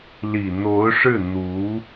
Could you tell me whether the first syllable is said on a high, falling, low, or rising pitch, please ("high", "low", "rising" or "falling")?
low